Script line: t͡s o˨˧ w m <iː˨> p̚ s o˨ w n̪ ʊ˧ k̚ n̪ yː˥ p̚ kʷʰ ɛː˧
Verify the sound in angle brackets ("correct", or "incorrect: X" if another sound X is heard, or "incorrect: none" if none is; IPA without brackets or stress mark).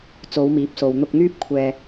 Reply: incorrect: iː˨˥